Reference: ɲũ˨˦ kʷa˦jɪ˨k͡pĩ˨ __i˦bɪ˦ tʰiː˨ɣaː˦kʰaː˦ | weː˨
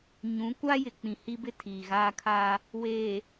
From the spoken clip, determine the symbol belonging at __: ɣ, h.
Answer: h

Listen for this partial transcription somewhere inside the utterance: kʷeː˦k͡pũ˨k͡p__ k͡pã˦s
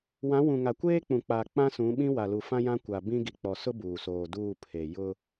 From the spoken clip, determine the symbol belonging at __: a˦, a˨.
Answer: a˨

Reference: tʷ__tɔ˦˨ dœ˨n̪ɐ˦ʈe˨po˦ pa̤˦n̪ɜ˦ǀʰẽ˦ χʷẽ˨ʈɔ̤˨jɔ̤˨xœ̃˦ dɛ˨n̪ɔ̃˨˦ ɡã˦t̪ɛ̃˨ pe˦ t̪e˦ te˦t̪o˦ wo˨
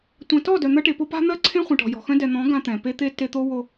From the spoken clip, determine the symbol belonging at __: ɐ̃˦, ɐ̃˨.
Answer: ɐ̃˨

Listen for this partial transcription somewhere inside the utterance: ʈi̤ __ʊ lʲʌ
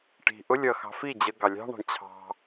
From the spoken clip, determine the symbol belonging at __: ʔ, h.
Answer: ʔ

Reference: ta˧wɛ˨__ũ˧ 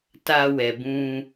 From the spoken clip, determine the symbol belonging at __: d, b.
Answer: b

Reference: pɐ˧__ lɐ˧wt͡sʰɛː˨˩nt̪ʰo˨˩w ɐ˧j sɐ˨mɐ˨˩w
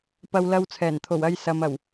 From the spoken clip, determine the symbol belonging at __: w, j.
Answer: w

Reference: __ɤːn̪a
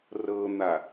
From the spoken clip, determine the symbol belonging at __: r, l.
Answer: r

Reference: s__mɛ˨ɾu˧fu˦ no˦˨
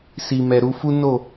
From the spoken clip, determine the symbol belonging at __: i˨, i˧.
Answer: i˨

